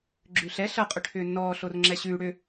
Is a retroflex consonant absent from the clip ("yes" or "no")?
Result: no